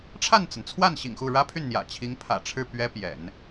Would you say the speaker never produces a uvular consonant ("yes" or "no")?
yes